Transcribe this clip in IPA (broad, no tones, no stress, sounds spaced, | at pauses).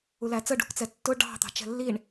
u l æ t͡s ə ɖ ṳ k t͡s ɛ tː ʊ ɖ ɑ̤ t̪ ɑ̤ t͡ʃ ɛ̤ lː i ɳ